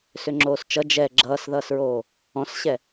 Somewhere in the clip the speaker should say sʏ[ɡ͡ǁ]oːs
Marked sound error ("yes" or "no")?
yes